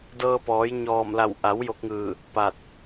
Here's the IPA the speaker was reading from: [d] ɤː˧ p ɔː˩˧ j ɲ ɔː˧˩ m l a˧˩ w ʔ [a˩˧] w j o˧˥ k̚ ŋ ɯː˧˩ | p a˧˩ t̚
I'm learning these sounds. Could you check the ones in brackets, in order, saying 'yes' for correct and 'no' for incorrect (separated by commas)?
yes, yes